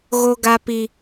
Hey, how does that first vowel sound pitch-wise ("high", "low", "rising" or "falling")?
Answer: high